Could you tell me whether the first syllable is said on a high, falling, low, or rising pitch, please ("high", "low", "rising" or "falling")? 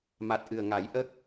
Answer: low